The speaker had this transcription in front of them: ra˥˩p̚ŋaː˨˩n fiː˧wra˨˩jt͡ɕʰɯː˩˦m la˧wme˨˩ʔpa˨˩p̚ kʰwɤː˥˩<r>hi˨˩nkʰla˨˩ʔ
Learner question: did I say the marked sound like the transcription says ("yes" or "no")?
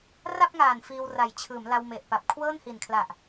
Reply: no